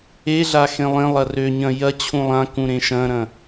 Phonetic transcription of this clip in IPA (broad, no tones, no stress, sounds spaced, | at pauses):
e ɮ a x ẽ lˠ ẽ lˠ ɐ r ø ɲ ɐ̃ j ɐ t͡ɕʰ ũ lˠ ã k ũ ɾ ẽ ʃ ɐ̃ ɾ ɐ̃